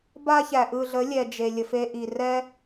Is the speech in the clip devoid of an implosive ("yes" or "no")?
yes